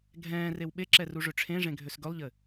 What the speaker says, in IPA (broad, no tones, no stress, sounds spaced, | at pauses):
ɡʱ ɛ̃ː r e w ɓ e ǁ ɛ r u ʐ ø ʈ͡ʂʰ ẽ ʐ ẽ ɡʱ ø s ɡ ɵ lˠ ʎ ɘ